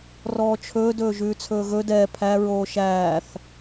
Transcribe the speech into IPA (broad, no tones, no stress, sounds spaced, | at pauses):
r ɔː t͡ʃʰ ɵː d ɵː ʒ ʉː t͡sʰ ɵː ɣ ɵ d ɛː pʰ æ ɹ oː ʃ æː θ